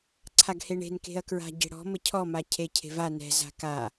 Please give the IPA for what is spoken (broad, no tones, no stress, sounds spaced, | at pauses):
ǀʰ a ɡ h e ɳ e̤ n k e̤ ɐ̯ k ɹ a̤ ɟ e̤ ɽ ɔ̤ m ɘ cʰ ɔ m a cʰ e cʰ e̤ v a n ɛ̤ z a̤ k a